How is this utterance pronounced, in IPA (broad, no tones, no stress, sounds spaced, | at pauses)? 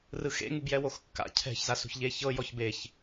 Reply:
r ɯ x ḛ ŋ u b j ɛ w o x kː a̰ cʰ ɛ̤ ç z a s ṳ ç ʎ e ç ɤ j ɔ ç b e ç